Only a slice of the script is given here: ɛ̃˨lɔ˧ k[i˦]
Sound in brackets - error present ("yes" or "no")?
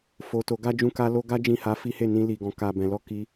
yes